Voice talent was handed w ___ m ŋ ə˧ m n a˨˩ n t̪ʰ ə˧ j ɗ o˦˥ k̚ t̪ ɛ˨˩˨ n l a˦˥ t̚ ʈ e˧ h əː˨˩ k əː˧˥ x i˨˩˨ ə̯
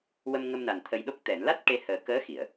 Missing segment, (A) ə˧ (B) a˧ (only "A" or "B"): A